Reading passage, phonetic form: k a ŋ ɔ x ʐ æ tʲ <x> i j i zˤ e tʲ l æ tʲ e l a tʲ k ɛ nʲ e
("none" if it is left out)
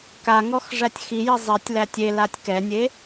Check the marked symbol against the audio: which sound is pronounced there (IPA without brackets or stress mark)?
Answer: x